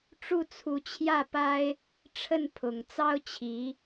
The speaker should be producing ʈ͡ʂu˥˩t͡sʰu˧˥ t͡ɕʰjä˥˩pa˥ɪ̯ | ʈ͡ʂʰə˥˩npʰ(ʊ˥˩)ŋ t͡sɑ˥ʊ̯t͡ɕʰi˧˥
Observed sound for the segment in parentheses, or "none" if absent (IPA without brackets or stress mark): ʊ˨˩